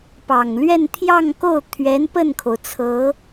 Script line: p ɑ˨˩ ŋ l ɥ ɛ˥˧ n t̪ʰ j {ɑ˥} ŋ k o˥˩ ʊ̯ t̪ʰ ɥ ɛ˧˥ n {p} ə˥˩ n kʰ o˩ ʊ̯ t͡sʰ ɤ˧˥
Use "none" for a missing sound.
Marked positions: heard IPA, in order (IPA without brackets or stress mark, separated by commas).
ɑ˥˧, p